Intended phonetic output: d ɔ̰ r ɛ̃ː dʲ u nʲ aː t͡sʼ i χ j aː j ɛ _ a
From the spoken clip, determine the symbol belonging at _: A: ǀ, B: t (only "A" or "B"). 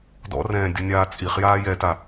B